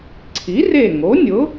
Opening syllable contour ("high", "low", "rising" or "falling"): rising